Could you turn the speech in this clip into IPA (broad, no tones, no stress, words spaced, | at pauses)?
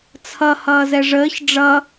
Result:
t͡sʰʌ hʌːzɛʐəːç ɖ͡ʐʌ